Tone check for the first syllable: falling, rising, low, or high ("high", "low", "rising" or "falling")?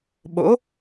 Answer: rising